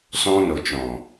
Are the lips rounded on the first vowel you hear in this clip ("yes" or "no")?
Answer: yes